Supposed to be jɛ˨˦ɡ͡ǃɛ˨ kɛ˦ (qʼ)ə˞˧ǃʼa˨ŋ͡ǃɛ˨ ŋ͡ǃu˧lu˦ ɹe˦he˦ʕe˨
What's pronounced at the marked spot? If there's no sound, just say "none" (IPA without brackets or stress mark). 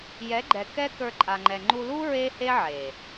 k